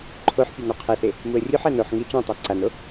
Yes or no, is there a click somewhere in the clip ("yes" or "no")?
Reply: yes